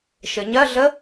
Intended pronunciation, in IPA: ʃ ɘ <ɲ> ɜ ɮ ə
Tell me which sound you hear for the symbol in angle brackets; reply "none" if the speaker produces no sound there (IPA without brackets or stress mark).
ɲ